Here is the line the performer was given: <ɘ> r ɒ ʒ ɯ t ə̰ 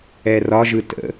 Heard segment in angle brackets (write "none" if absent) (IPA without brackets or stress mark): ɛ